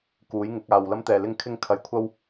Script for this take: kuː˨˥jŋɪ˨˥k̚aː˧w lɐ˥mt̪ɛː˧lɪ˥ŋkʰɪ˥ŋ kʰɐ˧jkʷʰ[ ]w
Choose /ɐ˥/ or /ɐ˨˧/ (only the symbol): ɐ˥